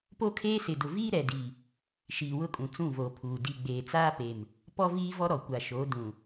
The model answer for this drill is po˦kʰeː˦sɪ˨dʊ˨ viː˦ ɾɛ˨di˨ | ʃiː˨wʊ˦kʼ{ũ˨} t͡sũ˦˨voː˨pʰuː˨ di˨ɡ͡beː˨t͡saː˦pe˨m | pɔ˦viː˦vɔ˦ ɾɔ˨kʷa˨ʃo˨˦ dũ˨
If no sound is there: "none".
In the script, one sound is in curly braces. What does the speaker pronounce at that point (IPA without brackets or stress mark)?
ũ˨